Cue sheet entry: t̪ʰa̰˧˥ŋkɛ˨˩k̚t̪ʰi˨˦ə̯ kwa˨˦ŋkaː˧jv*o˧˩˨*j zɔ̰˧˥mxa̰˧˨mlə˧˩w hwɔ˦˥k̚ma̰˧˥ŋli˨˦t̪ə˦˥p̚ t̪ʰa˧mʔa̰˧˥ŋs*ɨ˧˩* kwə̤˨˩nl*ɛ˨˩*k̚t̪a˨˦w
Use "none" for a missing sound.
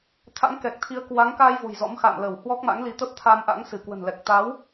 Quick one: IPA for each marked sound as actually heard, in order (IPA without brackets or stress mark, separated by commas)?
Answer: o̤˨˩, ɨ˧˩, ɛ˨˩